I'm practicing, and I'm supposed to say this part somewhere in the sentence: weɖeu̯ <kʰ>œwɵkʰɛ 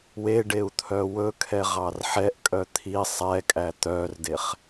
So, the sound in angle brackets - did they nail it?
no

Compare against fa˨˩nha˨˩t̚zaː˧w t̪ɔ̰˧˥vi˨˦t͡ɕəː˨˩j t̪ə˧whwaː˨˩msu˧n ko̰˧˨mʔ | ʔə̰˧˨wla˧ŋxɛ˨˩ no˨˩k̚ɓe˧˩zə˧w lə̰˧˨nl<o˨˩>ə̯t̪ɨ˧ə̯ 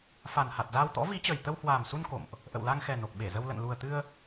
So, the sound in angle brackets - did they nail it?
no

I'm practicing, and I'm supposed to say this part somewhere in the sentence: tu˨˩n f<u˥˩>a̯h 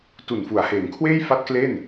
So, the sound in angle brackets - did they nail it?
no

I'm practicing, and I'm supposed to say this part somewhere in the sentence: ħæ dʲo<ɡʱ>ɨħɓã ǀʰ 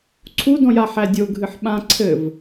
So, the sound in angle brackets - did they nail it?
yes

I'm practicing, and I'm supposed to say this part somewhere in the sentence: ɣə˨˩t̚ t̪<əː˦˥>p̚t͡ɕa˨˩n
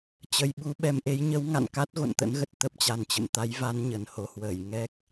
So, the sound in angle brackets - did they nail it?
no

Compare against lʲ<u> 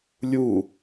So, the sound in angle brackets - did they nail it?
yes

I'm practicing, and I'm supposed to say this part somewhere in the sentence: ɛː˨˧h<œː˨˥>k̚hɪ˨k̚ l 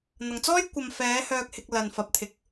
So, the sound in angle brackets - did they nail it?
no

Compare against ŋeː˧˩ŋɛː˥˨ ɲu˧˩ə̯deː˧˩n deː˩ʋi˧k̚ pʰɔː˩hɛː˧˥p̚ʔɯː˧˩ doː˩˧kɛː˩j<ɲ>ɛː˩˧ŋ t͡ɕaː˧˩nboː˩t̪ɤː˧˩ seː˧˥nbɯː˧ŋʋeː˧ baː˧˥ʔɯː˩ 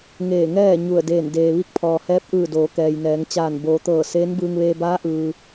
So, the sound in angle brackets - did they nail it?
no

